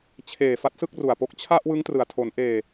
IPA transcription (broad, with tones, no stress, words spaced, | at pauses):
t͡ɕʰeː˨˩ fa˦˥t̚sɯ˥˩k̚ru˨˩a̯po˦˥k̚ t͡ɕʰa˥˩ʔwɯ˦˥ŋ trɯ˨˩a̯tʰo˩˦n ʔeː˨˩